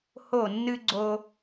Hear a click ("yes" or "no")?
yes